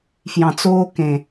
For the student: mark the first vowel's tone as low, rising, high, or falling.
low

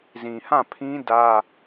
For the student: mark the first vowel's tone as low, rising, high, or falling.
low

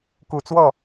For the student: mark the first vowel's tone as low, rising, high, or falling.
low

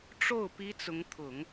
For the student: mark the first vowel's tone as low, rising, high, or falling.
falling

